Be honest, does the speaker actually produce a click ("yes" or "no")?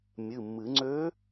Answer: yes